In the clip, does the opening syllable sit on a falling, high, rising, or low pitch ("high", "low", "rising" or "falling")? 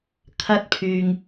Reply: high